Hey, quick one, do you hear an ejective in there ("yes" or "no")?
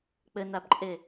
yes